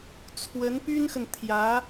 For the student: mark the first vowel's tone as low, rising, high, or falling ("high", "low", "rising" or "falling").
rising